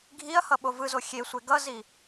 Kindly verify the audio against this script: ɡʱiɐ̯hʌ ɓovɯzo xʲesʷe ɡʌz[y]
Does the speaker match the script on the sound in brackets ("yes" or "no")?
no